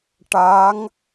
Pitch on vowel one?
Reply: rising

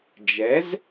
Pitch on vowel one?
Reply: rising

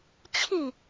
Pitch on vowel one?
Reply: falling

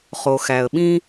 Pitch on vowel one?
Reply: low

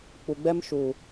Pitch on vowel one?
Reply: low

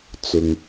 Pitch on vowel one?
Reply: low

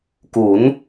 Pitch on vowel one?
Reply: rising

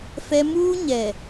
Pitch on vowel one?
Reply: high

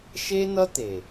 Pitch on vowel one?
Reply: high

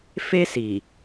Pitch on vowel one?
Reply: high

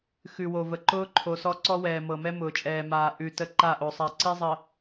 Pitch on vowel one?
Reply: low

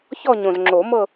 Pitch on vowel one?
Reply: falling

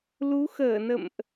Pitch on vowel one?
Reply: rising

